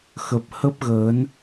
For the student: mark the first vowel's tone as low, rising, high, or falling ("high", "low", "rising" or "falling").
low